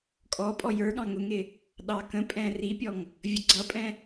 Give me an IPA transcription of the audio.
kʼ ɔ pʼ ɔ j ə˞ ɠ ɑ̃ ŋ ʊ ŋ ɪ | ɗ ɑ k ə̃ pʼ ɛ̃ r i pʲ ɔ ŋ | vʲ ə ɡ͡ǀ ʌ pʼ ɛ̃

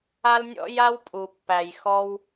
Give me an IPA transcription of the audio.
a˧ l nʲ ɔ̰˧ j a˧ w pʼ u˨ pː æ˨ j x ɔ˧ w

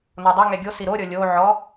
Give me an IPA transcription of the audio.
n o dˤ ʏ ŋ ɛ ɡʲ o s i ɾ o ɾʲ ɔ lʲ o ʕ ɔ

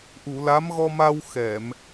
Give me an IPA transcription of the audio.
ʔ u˨˩˨ l a˧˥ m ɣ ɔ˧ m a˧ w x ɛ˨˩˨ m

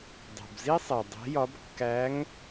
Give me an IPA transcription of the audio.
dˤ o̤˩ b z i˥ sˤ e˩ dˤ e̤˧˥ j ɒ˧˥ b kː æ˧˥ ŋ

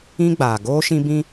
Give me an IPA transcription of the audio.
ĩ˦ ɡ͡b aː˨ ɡ oː˦ ʃ ĩ˦ b ĩ˦

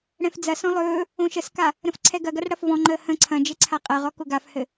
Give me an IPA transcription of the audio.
ɽ ɛ̃ f d͡z ɐ s ɔ̃ lˠ ɵː | õ ʃ ə s k a | ɾ ə̃ f ǀʰ ɛ ɡ ɐ ɡ ɐ r ɽ ɐ f v ɔ̃ ŋ͡ǃ əː h ə̃ ǀʰ ɐ̃ d͡ʒ ɘ ǀʰ a qʼ ɐ ʁ ɔ k ʊ ɡ a f h ɘ

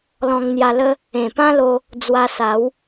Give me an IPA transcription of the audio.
l ɔ̃˧ ŋ n̪ j a˧ l ə˦ | ẽ˨˩ p ã˦ l o˧ | d͡z w a˧ s a˨˦ w

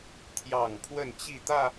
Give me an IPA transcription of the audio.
t̪ʰ j ɑ˨˩ ŋ pʰ w ə˥˨ n t͡ɕ i˥˨ t̪ ä˥˨

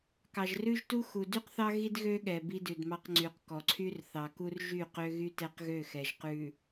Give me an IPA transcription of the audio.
k ɑ˨ ʒ r ʉ˦ ʒ t u˦ x u˨ d y˦ q θ ɑ˦ ɣ i˦ d ɣ ø˦ ɠ ɛ˨ b i˦ d ʉ˨ d m ɑ˦ q ŋ͡ǀ y˨ q k ɔ˨ ǀʰ y˦ r θ ɑ˨ k u˦ r ʒ y˦˨ q ø˦ ɣ y˦ t ɛ˦ q ɣ ø˦˨ x ɛ˨ ʒ q ʉ˨

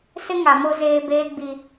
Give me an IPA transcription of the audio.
s ɪ˦ ŋ a˨ m o˦ z eː˦ b eː˦ ɡ͡b i˦

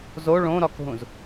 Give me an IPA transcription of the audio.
z o ɭ õ ɾ ɒ k ɦ ũ z

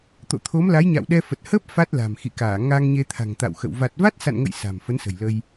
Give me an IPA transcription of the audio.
t̪ o̰˧˨ t̪ʰ o˨˦ m l a˨˦ j ɲ a̰˧˨ w ɗ ɛ˧ f ə˨˩ t̚ h əː˦˥ p̚ f a˦˥ t̚ l a̤˨˩ m x ḭ˧˨ k aː˧˩ ŋ a˧ ŋ ɲ e˧ t̪ʰ a̤˨˩ ŋ t̪ a̰˧˨ w x ə̰˧˨ w v a˨˩ t̚ v a˦˥ t̚ s a̰˧˨ n ŋ ə̰˧˨ j s a̤˨˩ m f ə˨˦ n s ə̤˨˩ j l ə˧ j

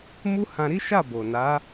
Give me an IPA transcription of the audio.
m u˦ h ã˧ ɾ i˦ ʃ a˦˨ b o˨ n a˨˦

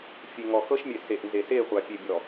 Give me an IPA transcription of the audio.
fʲ e˨ ŋ ɔ˨ x ɤ˦ ʃ mʲ e˨ s e˨ ʔ n z e˨ s e˦˨ χʷ a˨ pʲ e˨ bʲ ɔ˨

